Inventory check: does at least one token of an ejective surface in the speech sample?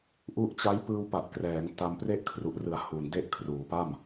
no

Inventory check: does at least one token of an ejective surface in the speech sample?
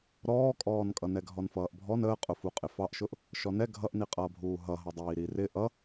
yes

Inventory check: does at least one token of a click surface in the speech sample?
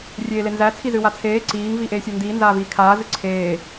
yes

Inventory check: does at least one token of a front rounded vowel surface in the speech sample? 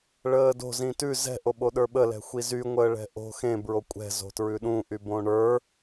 yes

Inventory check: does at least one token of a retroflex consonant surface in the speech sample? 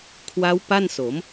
no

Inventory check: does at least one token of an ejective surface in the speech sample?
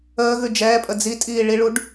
yes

